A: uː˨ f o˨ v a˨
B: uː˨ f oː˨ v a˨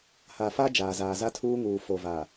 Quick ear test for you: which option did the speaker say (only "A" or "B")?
A